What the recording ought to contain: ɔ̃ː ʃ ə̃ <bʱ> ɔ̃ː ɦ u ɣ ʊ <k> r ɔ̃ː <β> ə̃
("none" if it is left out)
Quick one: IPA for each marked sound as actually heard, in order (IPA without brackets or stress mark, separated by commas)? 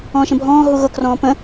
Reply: bʱ, k, p